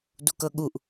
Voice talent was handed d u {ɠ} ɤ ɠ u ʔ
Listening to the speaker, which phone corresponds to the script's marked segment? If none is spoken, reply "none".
k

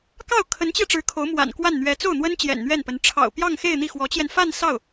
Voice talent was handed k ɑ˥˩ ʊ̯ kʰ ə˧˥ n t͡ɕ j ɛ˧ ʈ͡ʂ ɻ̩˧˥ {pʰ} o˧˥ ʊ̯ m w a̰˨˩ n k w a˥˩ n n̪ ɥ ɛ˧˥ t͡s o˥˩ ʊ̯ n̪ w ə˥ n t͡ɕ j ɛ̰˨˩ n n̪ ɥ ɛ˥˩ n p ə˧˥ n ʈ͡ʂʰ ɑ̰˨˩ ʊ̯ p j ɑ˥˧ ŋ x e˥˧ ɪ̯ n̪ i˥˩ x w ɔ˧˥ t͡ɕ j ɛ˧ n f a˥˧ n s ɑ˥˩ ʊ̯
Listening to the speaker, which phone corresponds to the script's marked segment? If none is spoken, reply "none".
kʰ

